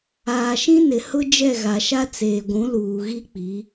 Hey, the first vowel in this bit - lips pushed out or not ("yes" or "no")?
no